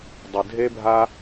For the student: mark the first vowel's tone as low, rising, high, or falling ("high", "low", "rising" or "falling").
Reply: low